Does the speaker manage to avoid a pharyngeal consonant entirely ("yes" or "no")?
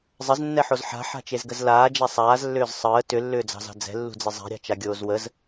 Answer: no